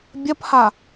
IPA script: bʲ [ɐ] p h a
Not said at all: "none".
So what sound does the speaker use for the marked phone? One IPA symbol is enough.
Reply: ɐ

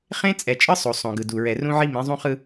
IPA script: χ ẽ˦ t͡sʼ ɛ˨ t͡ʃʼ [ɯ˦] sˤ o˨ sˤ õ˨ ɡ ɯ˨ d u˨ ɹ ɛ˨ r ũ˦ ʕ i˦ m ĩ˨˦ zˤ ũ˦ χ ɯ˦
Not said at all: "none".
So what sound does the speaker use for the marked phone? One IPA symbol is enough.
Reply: ɯ˦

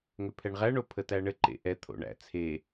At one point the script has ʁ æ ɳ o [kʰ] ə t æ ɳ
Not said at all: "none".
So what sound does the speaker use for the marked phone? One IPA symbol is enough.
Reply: pʰ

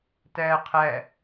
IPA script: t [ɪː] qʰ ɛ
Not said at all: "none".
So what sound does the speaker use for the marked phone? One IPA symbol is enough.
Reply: ɛː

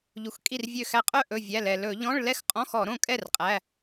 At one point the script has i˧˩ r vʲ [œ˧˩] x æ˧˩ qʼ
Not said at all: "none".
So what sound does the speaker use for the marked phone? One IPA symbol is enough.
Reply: ø˧˩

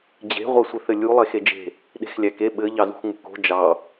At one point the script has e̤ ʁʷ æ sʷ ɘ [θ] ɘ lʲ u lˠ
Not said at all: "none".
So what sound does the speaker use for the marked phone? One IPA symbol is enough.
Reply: θ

